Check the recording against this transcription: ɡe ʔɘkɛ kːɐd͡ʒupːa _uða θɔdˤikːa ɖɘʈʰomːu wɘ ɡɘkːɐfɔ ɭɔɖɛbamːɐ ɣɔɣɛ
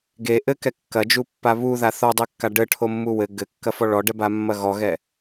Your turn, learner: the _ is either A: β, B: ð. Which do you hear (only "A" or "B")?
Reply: A